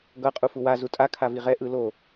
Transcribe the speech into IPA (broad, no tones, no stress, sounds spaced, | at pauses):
ɡ ʌ qʼ u f u w a z u tʼ a kʰ a v i ʁ ɛ ʔ ɯ l o